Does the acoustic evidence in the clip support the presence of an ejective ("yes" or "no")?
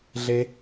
no